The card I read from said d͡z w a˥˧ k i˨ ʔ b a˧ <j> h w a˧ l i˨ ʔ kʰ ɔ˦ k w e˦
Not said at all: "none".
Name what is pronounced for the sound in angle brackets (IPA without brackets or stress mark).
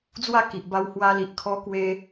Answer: w